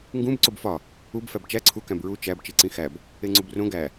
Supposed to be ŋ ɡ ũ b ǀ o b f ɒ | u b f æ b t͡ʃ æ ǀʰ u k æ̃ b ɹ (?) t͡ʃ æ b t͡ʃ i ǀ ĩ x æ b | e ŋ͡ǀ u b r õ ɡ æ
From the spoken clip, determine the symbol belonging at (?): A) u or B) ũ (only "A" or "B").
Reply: A